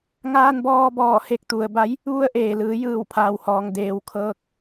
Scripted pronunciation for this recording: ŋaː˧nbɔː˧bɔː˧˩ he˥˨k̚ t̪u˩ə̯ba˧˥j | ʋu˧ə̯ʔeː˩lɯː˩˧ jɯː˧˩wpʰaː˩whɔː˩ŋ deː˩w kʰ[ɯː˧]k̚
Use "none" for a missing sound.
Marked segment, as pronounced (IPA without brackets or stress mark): ɤː˧